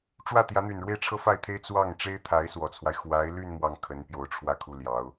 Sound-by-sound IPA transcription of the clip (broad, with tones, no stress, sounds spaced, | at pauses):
ʈ͡ʂ w ä˥˩ t̪ j ä˧˥ n̪ y˨˩ n ɻ w e˥˩ ɪ̯ ʈ͡ʂʰ ɤ˥ f a˥˩ ɪ̯ t̪ʰ e˥ ɪ̯ t͡s w ɑ˥˩ ŋ ʈ͡ʂ e˥ ɪ̯ t̪ʰ a˧˥ ɪ̯ s w ɔ˨˩ t͡sʰ w a˦ ɪ̯ x w a˧˥ ɪ̯ l y˥˧ n m w ɑ˥˩ ŋ kʰ ə˧˥ n p j o˧˥ ʊ̯ ʈ͡ʂʰ w ä˥˧ kʰ u˥˩ l j ɑ˧˥ ʊ̯